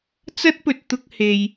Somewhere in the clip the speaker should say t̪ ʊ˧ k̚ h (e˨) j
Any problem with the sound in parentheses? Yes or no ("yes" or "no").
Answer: no